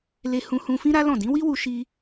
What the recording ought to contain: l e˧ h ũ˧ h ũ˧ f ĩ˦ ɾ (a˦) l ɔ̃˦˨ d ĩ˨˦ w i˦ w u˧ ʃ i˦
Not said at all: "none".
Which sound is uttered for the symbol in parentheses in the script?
a˦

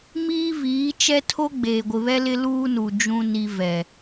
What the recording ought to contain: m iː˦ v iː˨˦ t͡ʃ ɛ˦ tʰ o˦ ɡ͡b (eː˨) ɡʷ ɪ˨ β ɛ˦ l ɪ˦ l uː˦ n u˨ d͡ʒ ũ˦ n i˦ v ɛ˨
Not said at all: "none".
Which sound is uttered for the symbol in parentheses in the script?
eː˨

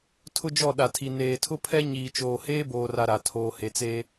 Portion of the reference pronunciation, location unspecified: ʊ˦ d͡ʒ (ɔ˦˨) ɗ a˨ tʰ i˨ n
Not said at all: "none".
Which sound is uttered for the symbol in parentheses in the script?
ɔ˦˨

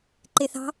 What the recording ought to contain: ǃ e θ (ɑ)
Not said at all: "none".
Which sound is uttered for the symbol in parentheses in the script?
ɑ̤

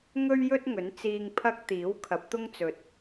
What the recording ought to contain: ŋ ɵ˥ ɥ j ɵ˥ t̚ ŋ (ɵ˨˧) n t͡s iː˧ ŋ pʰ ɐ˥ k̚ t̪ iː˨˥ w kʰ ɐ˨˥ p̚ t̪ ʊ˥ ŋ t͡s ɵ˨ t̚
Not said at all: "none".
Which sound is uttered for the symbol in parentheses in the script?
ɵ˨˥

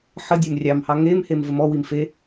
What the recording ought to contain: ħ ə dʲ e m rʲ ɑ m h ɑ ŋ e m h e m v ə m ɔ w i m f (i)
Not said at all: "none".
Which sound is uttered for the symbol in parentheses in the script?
e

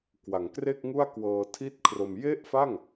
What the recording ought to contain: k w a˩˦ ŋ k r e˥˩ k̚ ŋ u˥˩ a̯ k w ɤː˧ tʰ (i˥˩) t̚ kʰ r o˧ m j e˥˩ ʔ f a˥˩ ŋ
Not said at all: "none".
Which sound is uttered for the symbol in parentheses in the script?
i˥˩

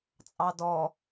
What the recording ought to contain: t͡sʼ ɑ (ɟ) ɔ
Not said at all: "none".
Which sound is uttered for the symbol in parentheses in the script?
d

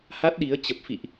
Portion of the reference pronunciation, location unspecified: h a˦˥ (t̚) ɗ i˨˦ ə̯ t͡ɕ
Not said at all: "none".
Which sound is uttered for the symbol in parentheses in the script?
t̚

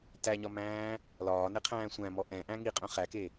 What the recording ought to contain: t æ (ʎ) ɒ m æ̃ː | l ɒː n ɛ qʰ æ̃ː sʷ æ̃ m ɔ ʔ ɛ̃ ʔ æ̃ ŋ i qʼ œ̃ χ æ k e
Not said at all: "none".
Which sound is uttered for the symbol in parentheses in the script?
ɲ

